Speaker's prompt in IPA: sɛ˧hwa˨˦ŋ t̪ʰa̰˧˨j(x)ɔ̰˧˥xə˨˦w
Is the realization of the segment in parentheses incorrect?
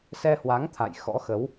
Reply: no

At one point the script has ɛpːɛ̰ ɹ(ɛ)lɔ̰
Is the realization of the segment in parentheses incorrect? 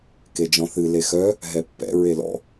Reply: yes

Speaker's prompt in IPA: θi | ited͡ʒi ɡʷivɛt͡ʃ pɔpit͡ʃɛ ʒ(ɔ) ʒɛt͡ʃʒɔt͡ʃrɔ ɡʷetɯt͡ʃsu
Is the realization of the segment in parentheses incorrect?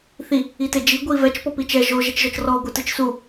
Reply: yes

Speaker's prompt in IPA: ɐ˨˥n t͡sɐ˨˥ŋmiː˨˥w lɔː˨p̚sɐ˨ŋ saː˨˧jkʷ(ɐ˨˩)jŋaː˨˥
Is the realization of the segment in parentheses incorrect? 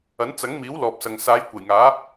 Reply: no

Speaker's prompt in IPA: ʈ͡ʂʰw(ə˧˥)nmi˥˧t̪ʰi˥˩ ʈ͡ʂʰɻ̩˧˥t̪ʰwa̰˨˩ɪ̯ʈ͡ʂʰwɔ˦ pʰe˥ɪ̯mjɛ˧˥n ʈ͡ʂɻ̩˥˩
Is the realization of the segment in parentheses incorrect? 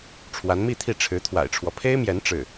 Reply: yes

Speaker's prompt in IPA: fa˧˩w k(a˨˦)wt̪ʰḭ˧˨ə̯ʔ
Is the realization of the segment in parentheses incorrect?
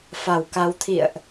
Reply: no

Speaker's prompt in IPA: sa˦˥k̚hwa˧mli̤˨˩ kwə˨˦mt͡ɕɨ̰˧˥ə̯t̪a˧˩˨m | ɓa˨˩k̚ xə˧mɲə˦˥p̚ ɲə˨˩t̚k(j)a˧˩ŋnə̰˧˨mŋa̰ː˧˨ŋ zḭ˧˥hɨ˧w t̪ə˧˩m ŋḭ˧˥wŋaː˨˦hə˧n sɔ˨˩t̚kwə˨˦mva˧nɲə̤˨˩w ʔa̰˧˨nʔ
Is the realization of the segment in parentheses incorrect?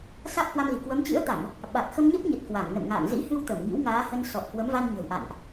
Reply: yes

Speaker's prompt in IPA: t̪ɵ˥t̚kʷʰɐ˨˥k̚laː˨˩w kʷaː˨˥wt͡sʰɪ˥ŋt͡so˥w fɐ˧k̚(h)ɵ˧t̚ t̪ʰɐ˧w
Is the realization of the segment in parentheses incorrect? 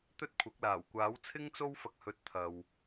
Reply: no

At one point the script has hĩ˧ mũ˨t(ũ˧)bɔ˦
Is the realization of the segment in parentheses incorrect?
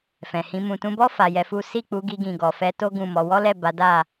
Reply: no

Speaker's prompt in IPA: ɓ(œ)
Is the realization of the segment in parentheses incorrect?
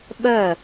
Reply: no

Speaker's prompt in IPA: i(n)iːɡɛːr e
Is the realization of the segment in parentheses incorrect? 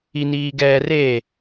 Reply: no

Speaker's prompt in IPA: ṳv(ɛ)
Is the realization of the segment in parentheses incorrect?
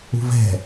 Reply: yes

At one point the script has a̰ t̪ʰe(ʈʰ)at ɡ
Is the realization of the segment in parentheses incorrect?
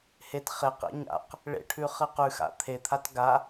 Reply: yes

